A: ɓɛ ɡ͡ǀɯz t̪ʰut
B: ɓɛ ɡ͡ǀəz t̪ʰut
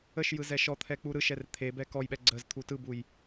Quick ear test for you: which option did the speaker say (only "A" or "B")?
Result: B